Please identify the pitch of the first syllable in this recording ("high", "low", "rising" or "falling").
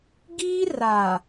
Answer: high